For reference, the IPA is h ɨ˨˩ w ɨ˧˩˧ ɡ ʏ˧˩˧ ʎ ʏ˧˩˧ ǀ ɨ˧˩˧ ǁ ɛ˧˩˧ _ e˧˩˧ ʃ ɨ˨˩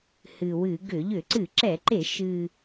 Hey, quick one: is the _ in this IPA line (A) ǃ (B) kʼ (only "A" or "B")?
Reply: A